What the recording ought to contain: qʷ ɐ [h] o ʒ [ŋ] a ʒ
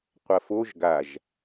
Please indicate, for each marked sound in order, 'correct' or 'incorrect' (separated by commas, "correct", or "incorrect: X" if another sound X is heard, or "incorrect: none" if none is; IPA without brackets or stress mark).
incorrect: f, incorrect: ɡ